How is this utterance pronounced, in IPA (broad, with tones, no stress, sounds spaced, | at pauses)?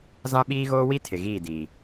z ã˦ ɓ iː˦ ɣ oː˦ w i˦ tʰ ɪ˨ ɣ iː˦˨ d iː˨